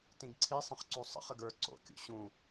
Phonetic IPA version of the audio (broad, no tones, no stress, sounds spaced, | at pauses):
t ĩ ɡ ǀʰ i sˤ ə̃ χ ǀ u sˤ ə̰ χ ə ɡ ə˞ ǀ o̰ kʲ ṵ ɕ ũ